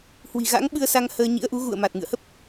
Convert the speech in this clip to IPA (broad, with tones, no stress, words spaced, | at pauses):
hwi̤˨˩ɣa̰˧˥ŋɓɨ˧ə̯sa˧ŋ həː˧ɲḭ˧˥ə̯ʔu˨˦ ɣṵ˧˨ə̯ma˨˩t̚ ŋɨ̰˧˨ə̯hə˦˥p̚